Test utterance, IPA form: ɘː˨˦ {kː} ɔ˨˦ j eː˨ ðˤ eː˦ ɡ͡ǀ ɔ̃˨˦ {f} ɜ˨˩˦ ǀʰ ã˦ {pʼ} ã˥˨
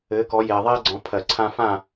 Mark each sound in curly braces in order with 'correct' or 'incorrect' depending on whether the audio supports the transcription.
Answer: incorrect, incorrect, incorrect

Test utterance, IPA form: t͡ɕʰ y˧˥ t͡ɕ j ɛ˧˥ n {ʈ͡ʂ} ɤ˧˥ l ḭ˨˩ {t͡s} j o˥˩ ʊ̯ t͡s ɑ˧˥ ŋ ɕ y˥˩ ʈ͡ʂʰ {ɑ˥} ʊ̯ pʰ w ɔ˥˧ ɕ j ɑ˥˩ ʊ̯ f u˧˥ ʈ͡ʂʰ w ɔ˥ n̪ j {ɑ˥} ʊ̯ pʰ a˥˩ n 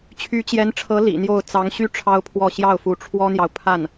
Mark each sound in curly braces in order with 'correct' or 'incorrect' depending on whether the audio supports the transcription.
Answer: incorrect, incorrect, correct, incorrect

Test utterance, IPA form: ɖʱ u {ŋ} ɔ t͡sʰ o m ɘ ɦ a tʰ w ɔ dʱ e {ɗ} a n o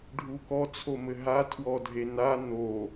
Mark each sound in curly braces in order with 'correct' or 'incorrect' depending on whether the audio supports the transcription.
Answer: incorrect, incorrect

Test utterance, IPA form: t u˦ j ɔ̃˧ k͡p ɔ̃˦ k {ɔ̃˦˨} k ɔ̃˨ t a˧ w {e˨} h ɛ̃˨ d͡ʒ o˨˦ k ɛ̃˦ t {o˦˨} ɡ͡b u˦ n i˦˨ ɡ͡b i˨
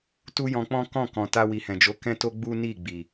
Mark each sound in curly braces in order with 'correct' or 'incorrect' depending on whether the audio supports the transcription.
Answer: correct, incorrect, incorrect

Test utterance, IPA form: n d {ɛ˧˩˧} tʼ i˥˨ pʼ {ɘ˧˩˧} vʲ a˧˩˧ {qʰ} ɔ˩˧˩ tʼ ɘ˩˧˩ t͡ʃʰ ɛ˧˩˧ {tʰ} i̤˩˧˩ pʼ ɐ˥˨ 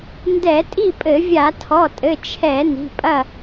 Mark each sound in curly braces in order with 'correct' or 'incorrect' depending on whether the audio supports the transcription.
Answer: correct, correct, incorrect, incorrect

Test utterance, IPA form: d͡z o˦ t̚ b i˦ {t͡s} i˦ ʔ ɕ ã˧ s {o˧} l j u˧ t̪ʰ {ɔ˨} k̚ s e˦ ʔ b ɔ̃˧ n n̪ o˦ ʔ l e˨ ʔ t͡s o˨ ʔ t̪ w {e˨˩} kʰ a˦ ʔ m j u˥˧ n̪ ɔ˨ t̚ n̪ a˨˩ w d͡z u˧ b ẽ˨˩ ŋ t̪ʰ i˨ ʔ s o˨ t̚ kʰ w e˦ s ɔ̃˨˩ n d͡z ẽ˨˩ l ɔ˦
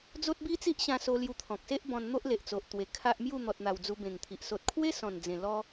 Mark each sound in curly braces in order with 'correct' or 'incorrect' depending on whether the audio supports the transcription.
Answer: correct, correct, incorrect, correct

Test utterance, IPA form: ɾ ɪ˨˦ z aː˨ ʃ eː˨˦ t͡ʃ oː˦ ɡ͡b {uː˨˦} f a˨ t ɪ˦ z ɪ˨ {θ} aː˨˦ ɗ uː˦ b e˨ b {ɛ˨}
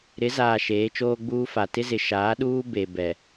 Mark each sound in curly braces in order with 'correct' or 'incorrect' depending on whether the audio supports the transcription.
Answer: incorrect, incorrect, correct

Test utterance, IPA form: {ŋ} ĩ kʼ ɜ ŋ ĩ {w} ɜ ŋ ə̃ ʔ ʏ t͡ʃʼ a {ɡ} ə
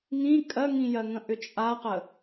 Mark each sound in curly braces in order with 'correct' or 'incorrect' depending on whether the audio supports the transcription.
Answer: correct, incorrect, incorrect

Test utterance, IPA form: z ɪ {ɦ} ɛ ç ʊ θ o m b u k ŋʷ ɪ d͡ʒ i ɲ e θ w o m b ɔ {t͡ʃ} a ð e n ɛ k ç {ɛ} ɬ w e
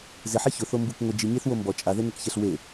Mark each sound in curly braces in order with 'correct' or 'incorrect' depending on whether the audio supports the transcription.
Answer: incorrect, incorrect, correct

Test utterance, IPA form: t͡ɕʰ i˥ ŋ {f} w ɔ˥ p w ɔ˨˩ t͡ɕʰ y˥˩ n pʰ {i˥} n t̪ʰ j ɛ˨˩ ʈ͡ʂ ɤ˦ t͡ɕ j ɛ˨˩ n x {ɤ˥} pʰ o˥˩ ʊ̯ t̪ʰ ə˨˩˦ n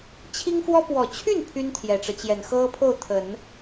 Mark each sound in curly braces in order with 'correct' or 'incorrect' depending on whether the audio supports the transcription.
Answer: correct, incorrect, correct

